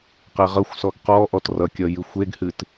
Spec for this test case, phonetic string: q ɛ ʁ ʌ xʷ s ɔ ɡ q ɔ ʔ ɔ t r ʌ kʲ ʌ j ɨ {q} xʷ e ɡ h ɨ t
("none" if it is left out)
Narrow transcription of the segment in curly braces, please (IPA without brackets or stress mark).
none